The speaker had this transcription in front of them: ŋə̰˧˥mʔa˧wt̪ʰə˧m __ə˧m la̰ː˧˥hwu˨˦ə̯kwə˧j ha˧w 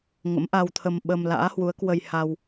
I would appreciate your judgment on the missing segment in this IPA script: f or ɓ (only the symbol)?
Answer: ɓ